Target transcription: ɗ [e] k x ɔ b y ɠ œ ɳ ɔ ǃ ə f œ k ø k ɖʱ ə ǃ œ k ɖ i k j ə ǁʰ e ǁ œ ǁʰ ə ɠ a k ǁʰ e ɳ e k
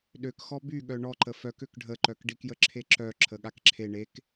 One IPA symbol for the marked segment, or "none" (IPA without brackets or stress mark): ø